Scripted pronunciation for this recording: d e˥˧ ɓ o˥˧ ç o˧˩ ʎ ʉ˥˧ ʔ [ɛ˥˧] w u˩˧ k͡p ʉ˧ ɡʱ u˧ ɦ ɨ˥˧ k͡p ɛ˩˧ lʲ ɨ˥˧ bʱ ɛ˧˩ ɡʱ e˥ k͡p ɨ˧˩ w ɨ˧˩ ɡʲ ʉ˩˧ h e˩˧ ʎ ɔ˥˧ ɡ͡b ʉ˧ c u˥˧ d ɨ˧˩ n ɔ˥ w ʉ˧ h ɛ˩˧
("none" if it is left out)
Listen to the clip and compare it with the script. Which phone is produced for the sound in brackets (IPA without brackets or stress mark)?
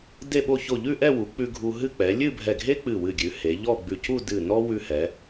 ɛ˥˧